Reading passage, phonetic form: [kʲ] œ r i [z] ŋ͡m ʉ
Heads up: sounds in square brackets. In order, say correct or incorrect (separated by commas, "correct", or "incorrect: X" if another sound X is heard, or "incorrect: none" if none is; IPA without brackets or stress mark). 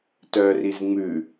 incorrect: t, correct